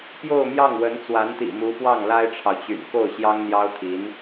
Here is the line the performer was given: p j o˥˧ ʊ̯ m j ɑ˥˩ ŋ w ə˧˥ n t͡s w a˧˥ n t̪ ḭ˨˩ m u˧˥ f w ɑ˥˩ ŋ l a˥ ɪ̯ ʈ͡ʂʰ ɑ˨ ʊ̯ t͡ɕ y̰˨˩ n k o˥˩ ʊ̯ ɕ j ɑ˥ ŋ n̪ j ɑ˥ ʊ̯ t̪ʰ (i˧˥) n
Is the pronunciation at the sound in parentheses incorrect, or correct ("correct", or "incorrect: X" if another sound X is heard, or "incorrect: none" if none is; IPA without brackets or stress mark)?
correct